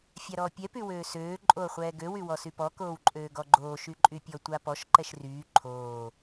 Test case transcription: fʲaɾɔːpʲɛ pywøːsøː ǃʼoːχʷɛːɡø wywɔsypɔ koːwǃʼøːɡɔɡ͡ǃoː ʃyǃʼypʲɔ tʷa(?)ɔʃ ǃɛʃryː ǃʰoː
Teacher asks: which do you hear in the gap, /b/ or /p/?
p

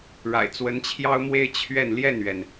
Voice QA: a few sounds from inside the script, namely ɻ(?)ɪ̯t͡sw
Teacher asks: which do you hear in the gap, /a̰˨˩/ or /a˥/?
a̰˨˩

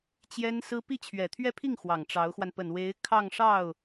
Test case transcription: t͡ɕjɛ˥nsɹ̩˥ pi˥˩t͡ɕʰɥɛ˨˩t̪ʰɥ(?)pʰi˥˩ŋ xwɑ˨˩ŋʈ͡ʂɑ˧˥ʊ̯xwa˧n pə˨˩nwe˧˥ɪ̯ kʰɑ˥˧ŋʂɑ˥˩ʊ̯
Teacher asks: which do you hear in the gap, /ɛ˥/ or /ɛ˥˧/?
ɛ˥˧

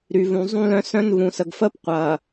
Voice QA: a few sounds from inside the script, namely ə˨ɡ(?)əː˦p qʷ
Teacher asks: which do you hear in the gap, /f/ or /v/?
f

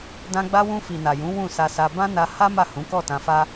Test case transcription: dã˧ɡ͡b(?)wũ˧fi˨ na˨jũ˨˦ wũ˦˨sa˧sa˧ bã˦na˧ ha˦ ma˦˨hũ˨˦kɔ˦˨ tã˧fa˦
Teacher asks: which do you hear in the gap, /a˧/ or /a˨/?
a˧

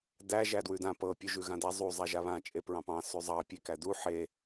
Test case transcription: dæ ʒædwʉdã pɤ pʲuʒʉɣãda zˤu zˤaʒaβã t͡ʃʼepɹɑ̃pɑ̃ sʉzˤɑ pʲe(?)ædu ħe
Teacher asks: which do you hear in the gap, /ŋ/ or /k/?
k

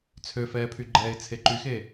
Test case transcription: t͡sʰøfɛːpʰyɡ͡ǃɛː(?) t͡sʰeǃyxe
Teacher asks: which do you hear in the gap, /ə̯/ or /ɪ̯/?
ɪ̯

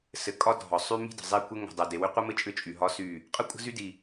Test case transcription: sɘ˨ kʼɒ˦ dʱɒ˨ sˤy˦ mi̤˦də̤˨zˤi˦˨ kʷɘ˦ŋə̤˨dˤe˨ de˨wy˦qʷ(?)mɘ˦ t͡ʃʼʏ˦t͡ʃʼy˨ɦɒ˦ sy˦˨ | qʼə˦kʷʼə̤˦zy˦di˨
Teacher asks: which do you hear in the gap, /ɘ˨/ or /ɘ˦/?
ɘ˦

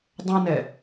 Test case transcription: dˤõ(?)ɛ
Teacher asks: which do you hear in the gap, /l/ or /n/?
n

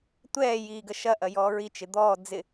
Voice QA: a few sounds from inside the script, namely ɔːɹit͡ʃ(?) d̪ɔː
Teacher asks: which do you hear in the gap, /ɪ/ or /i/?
ɪ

